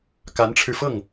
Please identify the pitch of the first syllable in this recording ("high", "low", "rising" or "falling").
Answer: rising